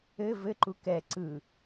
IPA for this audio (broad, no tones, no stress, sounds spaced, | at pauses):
ɘ v ɘ ǃ u k ɛ ǀ ɯ